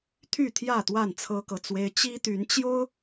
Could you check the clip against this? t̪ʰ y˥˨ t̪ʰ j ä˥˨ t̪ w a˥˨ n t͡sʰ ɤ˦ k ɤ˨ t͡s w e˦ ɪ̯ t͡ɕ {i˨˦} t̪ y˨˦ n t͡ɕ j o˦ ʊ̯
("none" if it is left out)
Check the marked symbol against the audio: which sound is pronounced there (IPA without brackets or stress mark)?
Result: i˦